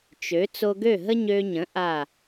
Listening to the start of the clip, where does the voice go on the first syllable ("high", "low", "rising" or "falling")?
rising